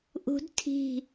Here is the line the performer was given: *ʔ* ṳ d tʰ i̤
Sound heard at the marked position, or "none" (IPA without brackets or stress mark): ʔ